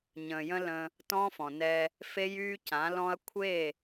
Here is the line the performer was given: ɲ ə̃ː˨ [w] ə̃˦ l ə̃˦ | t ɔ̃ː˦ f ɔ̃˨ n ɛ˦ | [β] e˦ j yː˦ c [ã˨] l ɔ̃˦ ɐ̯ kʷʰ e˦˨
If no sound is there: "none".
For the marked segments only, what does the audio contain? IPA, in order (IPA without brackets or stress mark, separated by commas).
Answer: j, f, ã˨˦